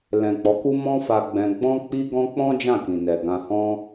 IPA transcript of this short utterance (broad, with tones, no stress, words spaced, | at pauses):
lɛ̃˨k͡pɔ˨˦ku˦ mɔ̃˦fa˧ɡ͡bɛ̃˧ ɡ͡bɔ̃˦k͡pi˦ɡɔ̃˦ k͡pɔ̃˦ d͡ʒã˦˨kĩ˨nɛ˨ɡã˧ hɔ̃˦